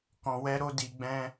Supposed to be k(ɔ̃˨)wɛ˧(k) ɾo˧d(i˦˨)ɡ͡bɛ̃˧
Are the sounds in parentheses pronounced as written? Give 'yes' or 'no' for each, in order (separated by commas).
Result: yes, no, no